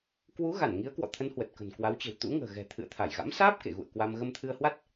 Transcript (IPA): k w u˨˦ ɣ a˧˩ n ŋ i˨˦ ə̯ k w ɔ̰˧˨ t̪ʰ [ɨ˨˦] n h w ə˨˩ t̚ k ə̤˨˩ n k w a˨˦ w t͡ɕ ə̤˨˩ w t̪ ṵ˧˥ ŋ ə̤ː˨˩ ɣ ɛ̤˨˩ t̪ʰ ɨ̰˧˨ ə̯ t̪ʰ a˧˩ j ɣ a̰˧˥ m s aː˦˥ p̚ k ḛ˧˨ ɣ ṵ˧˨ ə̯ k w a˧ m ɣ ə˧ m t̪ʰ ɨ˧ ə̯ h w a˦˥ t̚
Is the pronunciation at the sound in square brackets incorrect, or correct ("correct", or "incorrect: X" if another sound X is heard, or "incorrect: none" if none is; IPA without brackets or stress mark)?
incorrect: ə˨˦